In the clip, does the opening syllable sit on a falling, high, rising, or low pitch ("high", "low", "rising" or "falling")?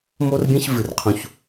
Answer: high